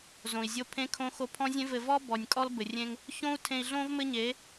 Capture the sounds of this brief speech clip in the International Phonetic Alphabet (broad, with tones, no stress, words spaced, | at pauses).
zõ˨i̯zʲo˧ pʰẽ˦kʰõ˦xo˦ pʰɔ̃˦zʲẽ˦vɘ˧ vɔ˦ bɔ˨nʲkʼɔ˦lbɘ˨ rʲẽ˧ŋ | çõ˦u̯ tʰẽ˧i̯ɮõ˦v mɘ˦ɲe˨˦